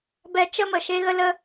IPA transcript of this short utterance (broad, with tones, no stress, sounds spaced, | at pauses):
b ɛ˧ t͡ʃ ə˦ m ə˨ ʃ e˦ ɣ ə˦ l ə˦